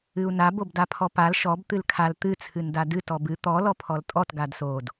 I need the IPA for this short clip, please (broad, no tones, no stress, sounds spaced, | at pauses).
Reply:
ɨ u̯ n a b o b d a pʰ ɔ p a l ʃ ɔ b t̪ ɨ l kʰ a l t̪ ɨ t͡sʰ ɨ n d a d ɨ t ɔ b ɨ t̪ ɔ l ɔ pʰ ɔ l tʼ ɔ t ɡ a d s o d